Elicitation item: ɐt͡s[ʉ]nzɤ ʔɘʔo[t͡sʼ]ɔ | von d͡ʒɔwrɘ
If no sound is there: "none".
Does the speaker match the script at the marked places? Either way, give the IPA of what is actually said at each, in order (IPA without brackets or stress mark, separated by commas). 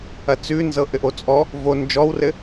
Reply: ʉ, t͡sʼ